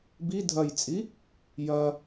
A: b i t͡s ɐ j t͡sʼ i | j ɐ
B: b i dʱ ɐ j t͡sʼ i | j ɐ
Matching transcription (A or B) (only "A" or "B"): B